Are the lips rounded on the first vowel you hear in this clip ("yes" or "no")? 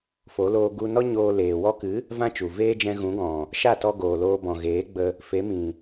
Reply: yes